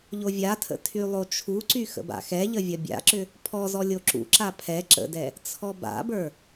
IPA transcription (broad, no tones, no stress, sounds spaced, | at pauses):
ʎ o vʲ a tʰ ə̰ tʰ y lˠ o t͡ʃʰ u ǀ y x ə̰ b a̰ x ɛ ʎ ə vʲ ɐ bʲ a̰ ǁ ʏ | pʰ ɔ z ɔ lʲ o ǁ ṵ ǁ a pʰ ɛ ǁ ə̰ d ɛ | t͡sʰ ɔ b a̰ b ə˞